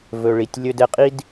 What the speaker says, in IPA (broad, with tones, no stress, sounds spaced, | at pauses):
v ɵ˨ ɭ i˨ tʲ lʲ ɵ˧ d ɛ˧ qʼ i˦ d